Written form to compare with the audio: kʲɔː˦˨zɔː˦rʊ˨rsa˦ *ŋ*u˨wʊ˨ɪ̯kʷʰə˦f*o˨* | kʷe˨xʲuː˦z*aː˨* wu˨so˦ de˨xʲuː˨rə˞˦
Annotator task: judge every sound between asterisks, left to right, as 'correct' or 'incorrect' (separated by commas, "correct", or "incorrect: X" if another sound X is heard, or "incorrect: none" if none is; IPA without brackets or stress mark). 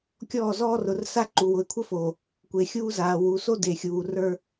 incorrect: ǃ, correct, correct